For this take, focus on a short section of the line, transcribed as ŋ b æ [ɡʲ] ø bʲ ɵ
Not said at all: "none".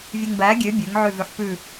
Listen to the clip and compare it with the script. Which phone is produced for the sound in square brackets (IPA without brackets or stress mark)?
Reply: ɡʲ